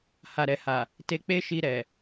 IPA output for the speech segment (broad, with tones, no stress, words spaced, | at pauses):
ha˨ɾɛ˨ha˨ | te˧ k͡pe˦ʃi˧ɾɛ˨